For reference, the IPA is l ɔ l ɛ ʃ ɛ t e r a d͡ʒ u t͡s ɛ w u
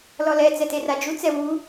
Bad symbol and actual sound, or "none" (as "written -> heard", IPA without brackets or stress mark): ʃ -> t͡s